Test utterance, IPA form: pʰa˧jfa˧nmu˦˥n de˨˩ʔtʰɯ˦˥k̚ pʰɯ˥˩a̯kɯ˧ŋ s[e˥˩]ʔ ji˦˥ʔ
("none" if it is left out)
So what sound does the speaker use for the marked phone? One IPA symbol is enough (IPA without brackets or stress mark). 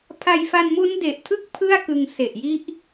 e˨˩